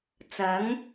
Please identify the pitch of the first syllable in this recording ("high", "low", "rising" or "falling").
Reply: rising